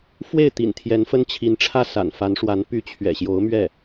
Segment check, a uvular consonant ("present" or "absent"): absent